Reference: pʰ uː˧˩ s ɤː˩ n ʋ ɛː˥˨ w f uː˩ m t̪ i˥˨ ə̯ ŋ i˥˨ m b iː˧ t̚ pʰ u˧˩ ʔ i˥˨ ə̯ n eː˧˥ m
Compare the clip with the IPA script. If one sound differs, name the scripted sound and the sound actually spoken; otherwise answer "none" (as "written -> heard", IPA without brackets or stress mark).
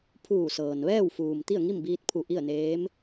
none